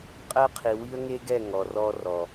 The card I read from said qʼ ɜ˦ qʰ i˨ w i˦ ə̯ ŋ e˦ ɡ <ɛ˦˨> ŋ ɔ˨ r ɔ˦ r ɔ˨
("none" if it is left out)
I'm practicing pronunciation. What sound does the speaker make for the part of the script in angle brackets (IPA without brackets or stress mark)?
ɛ˦˨